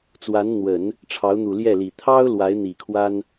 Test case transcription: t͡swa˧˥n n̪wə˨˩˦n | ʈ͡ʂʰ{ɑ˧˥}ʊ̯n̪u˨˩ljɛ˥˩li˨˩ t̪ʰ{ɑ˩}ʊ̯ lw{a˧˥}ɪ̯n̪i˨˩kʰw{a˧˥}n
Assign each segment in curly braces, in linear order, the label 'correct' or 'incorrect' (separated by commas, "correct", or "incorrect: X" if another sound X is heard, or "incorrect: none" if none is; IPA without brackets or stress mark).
correct, incorrect: ɑ˥, correct, incorrect: a˥